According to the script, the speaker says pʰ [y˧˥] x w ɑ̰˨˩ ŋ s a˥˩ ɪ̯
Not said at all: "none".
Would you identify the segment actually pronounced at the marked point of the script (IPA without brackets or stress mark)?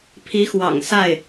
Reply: i˧˥